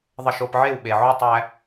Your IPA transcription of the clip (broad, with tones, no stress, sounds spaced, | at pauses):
ðˤ ə˧ ʃ o˧ p ʕ e˦˨ w ɓ e˨ ʕ o˦ tˤ æ˦